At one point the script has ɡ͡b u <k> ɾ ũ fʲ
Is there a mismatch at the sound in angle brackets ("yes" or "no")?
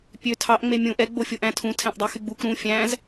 no